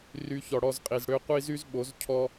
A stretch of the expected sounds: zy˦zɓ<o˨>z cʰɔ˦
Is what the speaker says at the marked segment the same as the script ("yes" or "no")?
no